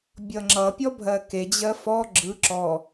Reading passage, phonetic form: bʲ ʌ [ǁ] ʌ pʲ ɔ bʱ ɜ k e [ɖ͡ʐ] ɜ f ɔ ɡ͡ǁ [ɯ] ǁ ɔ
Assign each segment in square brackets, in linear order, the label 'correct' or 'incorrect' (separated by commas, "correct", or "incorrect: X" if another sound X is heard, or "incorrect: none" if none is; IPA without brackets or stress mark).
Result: incorrect: ŋ͡ǁ, incorrect: d͡ʑ, correct